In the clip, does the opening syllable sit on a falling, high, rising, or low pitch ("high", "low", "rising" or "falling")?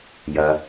low